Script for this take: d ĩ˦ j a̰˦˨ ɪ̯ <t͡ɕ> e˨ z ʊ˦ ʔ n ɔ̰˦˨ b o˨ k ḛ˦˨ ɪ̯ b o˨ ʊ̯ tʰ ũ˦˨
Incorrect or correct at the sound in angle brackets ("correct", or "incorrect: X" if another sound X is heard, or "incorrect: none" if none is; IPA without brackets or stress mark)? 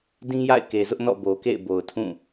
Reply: incorrect: k